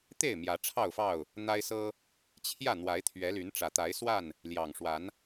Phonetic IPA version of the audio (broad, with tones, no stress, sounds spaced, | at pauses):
t̪ e˥˨ ɪ̯ m j ä˨˦ ʈ͡ʂʰ ɑ˥˨ ʊ̯ f ɑ˥˨ ʊ̯ | n̪ a˦ ɪ̯ s ɤ˦ | t͡ɕʰ j ä˥˨ n̪ w a˨˦ ɪ̯ t̪ʰ ɥ ɛ˨˦ l y˨˦ n ʈ͡ʂ ä˨˩ t̪ a˨˦ ɪ̯ s w a˥˨ n | l j ɑ˨˩ ŋ ʂ w a˨˦ n